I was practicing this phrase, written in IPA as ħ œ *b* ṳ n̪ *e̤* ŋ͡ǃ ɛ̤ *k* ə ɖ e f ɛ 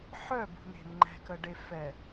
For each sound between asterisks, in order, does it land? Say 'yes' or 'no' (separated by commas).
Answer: yes, yes, yes